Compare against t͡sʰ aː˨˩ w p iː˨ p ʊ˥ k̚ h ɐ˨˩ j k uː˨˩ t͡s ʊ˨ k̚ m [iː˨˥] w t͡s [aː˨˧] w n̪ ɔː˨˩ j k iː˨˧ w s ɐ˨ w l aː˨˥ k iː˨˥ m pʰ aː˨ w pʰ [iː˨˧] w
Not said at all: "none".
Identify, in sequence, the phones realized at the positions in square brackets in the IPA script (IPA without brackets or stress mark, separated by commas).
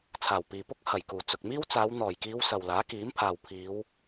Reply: iː˥, aː˨˧, iː˨˧